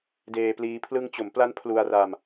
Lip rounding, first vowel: unrounded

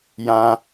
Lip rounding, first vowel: unrounded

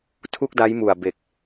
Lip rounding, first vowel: rounded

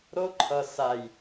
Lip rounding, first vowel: rounded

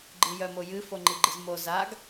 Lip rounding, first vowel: unrounded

